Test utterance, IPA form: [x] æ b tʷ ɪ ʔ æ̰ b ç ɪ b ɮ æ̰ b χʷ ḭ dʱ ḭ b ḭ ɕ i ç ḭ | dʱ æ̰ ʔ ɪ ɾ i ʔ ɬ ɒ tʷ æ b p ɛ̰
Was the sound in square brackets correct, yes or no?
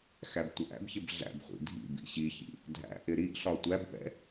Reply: yes